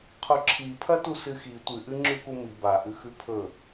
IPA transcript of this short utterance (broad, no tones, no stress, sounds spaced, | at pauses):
qʰ o ǁʰ i pʰ ɐ t u s ɨ x i tʷ ɨ ʔ ɨ ŋ͡ǁ ʉ k u m i b a ʔ ʉ x ʉ pʰ ɵ